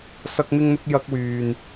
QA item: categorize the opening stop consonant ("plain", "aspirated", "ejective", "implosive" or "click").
plain